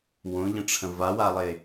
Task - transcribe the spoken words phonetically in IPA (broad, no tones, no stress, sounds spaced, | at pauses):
w õ ʎ ə̃ ʈ͡ʂʰ ə̃ v a w a lˠ e